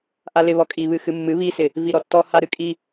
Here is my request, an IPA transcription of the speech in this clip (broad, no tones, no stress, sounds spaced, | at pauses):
ʔ a l ɪ β ɔ kʼ i β ɨ x ɨ mː ɨ β i s ɪ | v i ɾ ɔ tː ɔ h a ɾ ɨ kʼ i